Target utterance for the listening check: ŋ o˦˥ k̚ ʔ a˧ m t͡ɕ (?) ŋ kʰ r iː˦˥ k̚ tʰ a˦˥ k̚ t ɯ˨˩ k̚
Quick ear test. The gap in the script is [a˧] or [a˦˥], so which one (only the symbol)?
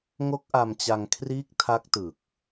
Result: a˧